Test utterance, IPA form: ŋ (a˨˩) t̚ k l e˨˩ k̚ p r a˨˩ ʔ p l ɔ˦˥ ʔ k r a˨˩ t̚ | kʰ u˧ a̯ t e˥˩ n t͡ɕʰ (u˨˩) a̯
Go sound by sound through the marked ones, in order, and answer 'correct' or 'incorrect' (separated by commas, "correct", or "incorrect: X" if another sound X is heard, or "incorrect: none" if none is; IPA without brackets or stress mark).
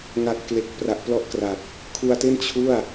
correct, incorrect: u˥˩